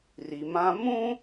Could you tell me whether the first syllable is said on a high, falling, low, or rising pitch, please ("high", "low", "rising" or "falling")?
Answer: low